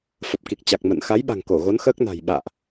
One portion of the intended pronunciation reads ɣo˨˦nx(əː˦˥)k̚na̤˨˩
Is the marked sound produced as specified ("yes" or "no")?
yes